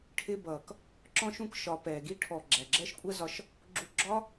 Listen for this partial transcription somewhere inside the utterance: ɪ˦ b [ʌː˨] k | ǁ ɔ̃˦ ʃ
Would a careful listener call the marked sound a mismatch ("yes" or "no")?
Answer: no